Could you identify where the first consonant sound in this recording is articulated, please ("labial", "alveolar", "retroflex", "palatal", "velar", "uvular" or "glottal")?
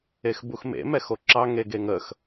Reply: velar